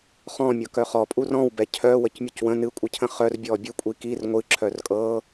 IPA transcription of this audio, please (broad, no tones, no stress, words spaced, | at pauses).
χɔ̃mʲɤ kœχɔpʼur ɔ̃wbɛ cʰœ wəcmʲucwə̃ nɨkʷʼɨcʰə̃ χœrbʲɔ bʲɨkʷʼi kir ŋʷɨ ǁʰœrkʼɤ